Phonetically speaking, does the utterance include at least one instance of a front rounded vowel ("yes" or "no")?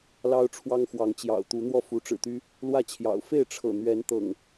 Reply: yes